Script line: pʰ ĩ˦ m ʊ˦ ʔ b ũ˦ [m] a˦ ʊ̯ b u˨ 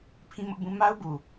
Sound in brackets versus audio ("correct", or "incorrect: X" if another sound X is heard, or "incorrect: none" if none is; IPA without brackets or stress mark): correct